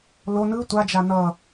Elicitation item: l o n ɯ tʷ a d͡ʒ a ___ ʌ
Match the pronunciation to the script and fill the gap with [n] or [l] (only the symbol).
n